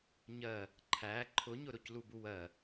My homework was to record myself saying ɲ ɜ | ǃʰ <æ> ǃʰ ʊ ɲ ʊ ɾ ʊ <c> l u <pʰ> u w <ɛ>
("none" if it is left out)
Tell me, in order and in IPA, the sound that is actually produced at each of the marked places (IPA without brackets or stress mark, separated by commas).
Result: æ, c, b, ɜ